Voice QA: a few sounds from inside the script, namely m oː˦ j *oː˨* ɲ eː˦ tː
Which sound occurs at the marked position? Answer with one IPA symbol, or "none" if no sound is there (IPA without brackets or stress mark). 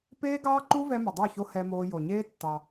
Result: o˨